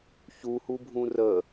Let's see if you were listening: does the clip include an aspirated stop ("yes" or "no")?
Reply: no